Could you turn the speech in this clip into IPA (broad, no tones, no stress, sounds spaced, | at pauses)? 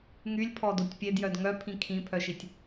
ŋ y lʲ pʰ ɔ d o tʲ pʲ e d j œ d ŋ œ pʰ ĩ kʰ ĩ pʰ œ ʃ i tʲ